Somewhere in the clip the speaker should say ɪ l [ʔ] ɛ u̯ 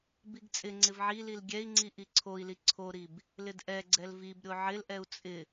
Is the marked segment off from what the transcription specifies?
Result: no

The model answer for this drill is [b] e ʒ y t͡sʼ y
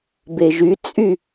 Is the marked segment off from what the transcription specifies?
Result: no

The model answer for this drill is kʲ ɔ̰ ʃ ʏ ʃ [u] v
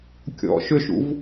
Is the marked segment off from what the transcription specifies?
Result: yes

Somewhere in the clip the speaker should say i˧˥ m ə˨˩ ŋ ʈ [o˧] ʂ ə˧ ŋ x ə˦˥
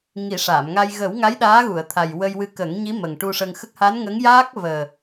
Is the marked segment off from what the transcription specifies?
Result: yes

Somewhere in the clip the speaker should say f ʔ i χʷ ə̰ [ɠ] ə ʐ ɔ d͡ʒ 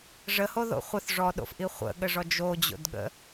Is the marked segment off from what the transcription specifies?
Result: no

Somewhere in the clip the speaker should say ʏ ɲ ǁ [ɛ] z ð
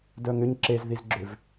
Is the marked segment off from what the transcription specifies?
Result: yes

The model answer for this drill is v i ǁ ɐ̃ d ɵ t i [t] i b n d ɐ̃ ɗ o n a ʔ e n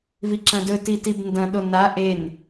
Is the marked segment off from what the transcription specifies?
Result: no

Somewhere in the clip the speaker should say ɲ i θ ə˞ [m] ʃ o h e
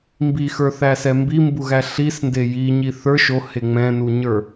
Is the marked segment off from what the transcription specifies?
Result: yes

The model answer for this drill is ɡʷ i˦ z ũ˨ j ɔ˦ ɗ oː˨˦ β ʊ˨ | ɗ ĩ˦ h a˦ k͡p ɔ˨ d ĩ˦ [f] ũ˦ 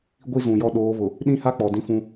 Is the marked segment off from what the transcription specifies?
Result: no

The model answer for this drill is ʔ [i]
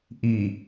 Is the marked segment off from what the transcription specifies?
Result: no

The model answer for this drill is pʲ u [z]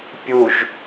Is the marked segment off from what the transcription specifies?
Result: yes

